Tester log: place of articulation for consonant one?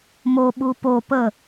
labial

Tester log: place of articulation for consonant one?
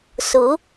alveolar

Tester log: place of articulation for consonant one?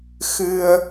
velar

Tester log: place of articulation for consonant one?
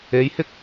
palatal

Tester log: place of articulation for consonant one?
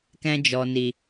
velar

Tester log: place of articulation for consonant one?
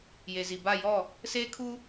palatal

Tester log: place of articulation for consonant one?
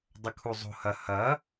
alveolar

